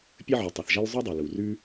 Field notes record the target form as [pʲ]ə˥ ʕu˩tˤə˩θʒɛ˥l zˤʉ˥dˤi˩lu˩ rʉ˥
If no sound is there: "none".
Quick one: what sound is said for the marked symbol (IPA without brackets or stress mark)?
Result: pʲ